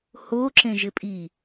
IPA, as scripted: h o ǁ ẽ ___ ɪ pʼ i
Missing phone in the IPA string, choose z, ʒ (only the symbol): ʒ